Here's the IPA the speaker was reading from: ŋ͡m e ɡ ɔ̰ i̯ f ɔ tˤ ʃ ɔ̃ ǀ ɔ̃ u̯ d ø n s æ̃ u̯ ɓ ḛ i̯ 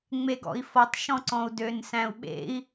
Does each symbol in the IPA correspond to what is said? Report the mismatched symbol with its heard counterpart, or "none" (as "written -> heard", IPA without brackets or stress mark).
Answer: none